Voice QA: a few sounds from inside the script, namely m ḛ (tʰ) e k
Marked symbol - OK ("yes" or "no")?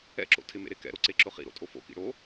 no